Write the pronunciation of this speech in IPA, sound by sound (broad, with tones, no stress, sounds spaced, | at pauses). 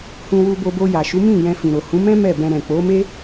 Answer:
h ũ˧ w u˧ b o˧ b o˧ j a˨ ʃ u˨˦ m ĩ˦˨ j ɛ̃˧ f ĩ˨ ɾ o˨ h ũ˨˦ m ɛ̃˦ m ɛ˦˨ b ɛ̃˧ ɾ ɛ̃˨ k͡p o˨˦ m e˦